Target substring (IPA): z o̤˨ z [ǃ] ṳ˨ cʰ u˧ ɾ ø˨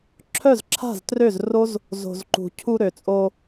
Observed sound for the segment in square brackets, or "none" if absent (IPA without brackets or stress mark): ǃ